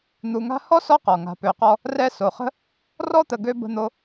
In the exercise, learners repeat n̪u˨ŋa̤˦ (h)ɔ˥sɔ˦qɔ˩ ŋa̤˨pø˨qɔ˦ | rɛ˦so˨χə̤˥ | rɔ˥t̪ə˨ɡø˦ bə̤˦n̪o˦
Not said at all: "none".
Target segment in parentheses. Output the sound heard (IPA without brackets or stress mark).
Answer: h